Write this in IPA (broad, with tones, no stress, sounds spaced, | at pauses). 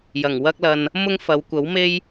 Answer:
j ɐ˨˩ ŋ w ɐ˥ k̚ l ɐ˧ n | m ʊ˥ ŋ f ɐ˨˧ w kʷ ɐ˨˥ w m e˥ j